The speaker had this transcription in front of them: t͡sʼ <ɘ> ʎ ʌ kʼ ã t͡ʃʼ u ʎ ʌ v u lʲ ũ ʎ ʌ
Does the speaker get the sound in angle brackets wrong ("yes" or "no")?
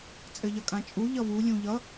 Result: no